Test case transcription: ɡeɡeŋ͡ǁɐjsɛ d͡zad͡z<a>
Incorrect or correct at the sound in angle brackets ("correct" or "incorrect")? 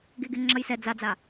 correct